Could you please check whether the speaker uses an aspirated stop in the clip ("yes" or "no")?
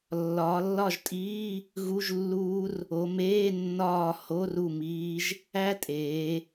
no